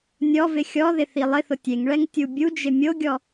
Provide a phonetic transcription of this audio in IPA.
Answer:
nʲɔvɪ xʲɔðɪ θilˠɪθʊ tʲeŋɭɛŋ tʲubʲud͡ʒɪ mʲoɡʲɔ

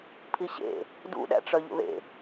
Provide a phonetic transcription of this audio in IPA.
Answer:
pʰiɕḛ | dṵɗæ̰ʈ͡ʂœ ʎṵðḛ

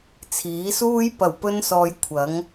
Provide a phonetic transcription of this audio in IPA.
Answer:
t͡sʰiː˨˥suː˥j pɐ˨˩wpɵ˧nsɔː˨j kʷʰɐ˨˥ŋ

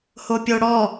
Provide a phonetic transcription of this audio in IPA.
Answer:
hopʲoɽɔ

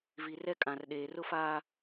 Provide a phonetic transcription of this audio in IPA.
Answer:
vi˨rɛ˦ kʼã˨rɗeː˨rʊ˦faː˦

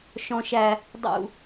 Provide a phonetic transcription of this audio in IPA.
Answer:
ʃɔ̃˦ʃæ˦ | dˤṵ˦

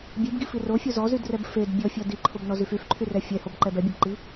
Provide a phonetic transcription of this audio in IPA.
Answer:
bʲebɡifi rofʲo zɔzydrɛb fed bʲɔfʲɔ diǃʰobnɔzyf yfǃʰyrɛ fʲɛhobǃɛb ɛbʲebǃi

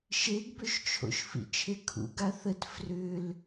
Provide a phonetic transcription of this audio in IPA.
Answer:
ʃeɡbøʃt͡ʃʰo̰ʃ fḭt͡ʃʰekʰṵ ɡaθət frʏl

